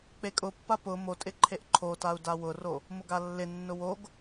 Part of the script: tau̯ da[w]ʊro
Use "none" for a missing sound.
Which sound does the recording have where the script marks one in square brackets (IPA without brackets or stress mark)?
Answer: w